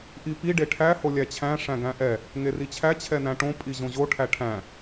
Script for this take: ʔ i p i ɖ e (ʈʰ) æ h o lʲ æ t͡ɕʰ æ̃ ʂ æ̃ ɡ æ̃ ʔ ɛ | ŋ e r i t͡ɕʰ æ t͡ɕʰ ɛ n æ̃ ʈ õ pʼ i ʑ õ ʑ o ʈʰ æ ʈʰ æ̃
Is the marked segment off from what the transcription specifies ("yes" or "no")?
no